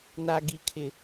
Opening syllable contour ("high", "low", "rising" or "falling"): high